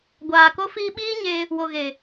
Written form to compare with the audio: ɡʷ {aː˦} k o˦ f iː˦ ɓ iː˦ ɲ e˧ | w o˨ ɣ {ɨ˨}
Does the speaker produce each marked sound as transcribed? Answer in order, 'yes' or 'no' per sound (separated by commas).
no, no